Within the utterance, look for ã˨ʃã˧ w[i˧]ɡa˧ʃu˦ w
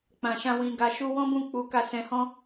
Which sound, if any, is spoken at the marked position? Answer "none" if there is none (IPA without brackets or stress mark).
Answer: ĩ˧